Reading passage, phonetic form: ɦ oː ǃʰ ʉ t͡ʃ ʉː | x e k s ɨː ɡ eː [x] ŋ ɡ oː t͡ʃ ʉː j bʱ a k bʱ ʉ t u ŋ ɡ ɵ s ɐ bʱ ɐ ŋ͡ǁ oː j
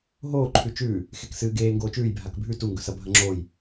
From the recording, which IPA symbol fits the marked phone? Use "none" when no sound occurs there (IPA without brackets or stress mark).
none